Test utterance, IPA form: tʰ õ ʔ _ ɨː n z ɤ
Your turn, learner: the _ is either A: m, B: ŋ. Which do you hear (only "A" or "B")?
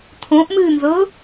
A